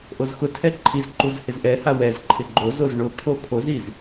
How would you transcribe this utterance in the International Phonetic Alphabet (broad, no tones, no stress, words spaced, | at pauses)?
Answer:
ʔozxʊtʰɛ ǃʰizǃuz hɪzʔɛha wɛz ǃʰɪɡ͡ǃozoz ɳʊkʰo pʰoziz